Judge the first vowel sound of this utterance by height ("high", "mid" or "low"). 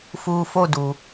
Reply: high